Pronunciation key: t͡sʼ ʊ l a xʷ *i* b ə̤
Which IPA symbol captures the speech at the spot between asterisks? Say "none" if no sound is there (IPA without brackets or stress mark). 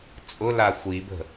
i